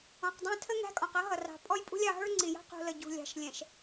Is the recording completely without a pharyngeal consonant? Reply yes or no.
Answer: yes